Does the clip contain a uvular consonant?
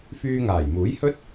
no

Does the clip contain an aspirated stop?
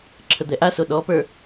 yes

